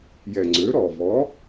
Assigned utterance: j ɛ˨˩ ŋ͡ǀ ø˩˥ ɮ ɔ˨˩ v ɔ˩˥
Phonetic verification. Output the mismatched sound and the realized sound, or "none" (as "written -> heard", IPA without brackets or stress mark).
ɮ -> ɾ